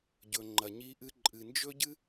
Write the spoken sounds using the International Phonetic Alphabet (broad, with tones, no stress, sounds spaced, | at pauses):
ɟ ɵ˨ ŋ͡ǃ ɐ˨ ɲ i˧ ʔ ɨ˧ ǃʼ ɨ˨ n d͡ʒ ɵ˦ ɟ ɨ˦